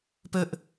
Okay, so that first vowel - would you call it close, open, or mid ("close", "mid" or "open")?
mid